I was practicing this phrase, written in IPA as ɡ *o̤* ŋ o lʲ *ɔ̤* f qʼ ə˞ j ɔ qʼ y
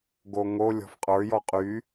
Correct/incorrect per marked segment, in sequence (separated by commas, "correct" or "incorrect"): incorrect, correct